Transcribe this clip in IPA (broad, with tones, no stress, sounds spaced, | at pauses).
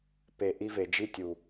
p e˨ ʔ i˦ v e˨ d͡ʒ i˦ tʲ u˨